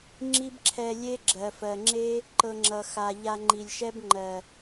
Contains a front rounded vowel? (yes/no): no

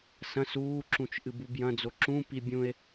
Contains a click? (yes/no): yes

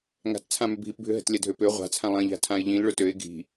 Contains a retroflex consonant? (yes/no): yes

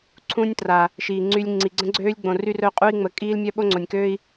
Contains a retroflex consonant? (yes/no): no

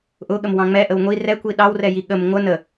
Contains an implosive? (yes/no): yes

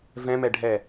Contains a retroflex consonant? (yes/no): yes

